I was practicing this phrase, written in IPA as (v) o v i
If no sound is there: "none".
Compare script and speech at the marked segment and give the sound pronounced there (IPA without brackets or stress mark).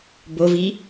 b